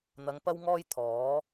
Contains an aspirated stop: yes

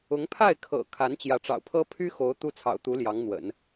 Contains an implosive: no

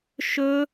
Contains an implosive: no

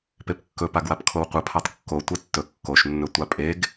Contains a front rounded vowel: no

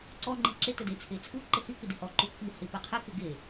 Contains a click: yes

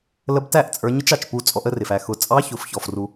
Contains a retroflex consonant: no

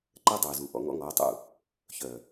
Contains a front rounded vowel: yes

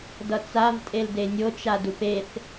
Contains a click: no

